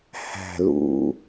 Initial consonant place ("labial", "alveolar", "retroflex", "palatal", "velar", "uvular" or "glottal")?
glottal